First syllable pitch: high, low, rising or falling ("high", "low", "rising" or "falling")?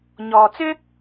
low